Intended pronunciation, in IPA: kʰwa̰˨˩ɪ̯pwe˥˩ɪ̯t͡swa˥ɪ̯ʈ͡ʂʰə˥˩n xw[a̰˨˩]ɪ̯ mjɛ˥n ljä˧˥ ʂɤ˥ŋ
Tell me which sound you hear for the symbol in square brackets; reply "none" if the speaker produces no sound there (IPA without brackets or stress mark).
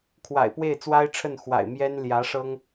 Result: a̰˨˩